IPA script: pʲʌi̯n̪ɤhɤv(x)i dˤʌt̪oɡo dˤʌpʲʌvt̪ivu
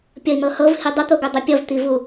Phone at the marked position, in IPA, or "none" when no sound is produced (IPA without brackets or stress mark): h